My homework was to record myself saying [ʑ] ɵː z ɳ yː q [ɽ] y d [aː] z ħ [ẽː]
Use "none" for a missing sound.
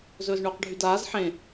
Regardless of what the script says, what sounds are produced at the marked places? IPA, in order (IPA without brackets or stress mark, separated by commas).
z, ɖʱ, aː, ẽ